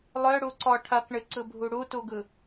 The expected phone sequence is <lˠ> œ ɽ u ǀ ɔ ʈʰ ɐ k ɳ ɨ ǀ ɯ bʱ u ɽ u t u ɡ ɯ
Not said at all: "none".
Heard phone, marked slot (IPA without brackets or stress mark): lˠ